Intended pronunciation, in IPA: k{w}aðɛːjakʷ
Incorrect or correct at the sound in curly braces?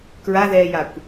incorrect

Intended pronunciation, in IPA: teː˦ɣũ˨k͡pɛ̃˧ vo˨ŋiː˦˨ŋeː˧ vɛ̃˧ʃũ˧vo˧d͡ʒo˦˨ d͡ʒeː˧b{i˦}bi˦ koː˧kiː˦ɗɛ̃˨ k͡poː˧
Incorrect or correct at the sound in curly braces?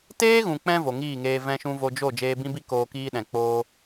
incorrect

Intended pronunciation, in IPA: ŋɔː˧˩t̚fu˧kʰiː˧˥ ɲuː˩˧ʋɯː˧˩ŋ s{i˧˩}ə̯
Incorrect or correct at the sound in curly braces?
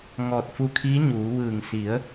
incorrect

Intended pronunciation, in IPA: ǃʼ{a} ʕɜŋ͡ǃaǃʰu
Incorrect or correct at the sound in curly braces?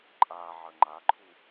correct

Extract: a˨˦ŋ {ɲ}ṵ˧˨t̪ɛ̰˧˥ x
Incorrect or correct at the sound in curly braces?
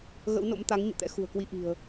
correct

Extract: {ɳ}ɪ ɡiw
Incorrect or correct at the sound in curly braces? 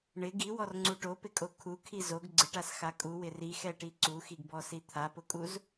correct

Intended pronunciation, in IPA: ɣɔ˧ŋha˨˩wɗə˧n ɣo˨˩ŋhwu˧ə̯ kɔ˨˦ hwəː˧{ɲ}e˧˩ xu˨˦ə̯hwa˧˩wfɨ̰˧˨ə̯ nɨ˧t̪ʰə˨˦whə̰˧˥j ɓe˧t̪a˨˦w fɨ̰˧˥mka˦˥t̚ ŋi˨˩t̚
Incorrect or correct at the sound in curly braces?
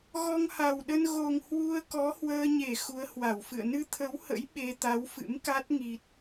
correct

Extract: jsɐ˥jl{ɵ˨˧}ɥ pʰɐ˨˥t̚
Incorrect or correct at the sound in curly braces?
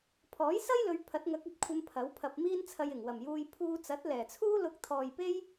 correct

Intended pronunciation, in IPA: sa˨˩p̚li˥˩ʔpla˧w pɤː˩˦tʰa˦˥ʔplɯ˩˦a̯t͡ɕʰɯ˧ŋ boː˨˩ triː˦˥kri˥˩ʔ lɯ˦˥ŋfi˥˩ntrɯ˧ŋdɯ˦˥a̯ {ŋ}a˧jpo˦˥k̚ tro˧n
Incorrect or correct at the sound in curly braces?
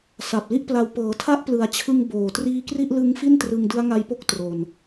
correct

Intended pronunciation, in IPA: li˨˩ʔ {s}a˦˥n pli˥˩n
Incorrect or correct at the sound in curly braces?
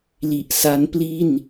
correct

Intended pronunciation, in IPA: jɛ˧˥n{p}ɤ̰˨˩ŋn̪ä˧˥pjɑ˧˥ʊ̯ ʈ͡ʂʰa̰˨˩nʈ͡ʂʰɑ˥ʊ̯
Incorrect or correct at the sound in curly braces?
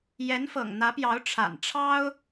incorrect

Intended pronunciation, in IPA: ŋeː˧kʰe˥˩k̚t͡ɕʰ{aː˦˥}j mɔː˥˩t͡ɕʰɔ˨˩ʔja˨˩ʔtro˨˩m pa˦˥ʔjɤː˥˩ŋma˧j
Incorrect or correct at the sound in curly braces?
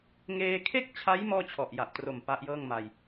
incorrect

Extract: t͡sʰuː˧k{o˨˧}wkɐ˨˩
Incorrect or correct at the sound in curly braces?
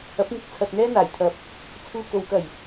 correct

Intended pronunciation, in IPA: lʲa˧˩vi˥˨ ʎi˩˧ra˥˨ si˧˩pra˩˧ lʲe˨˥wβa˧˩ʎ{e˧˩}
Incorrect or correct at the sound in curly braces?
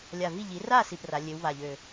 incorrect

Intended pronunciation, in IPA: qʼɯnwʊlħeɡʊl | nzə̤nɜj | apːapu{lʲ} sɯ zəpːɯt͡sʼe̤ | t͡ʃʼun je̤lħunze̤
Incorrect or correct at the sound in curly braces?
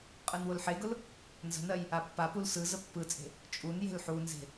incorrect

